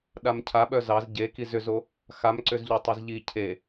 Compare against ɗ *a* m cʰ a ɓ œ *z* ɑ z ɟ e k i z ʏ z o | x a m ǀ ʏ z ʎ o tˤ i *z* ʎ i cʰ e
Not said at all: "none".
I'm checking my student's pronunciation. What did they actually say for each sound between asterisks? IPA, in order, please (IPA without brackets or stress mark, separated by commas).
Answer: a, z, z